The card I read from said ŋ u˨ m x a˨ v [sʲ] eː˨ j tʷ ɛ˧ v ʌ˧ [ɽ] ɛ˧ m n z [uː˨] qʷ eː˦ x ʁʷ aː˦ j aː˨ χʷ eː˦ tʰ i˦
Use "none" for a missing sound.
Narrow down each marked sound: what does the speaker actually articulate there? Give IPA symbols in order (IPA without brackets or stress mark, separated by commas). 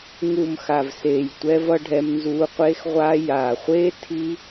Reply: s, ɖʱ, uː˧